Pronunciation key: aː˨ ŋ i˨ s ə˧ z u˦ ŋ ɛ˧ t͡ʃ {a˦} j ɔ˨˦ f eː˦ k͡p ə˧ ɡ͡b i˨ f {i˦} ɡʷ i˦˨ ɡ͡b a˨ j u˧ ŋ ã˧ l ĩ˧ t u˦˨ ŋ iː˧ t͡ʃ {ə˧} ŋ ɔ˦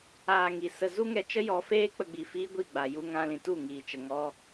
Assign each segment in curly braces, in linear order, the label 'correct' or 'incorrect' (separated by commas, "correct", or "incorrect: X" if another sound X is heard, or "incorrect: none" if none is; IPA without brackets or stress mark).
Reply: incorrect: ə˦, incorrect: iː˦, correct